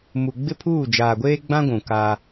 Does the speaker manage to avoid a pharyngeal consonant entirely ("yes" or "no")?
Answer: yes